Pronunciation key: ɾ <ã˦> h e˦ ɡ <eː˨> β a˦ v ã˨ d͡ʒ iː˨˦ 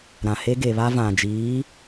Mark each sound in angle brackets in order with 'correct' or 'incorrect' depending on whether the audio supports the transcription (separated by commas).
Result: incorrect, incorrect